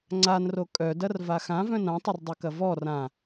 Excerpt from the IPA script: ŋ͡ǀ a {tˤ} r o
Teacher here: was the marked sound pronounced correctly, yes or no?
no